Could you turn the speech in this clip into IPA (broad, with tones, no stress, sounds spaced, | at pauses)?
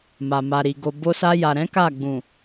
m a˨ m a˨ ɾ i˨ ɡ o˨ b o˧ s a˧ j a˨ ɾ ɛ̃˨˦ k a˦˨ ɡ͡b ũ˨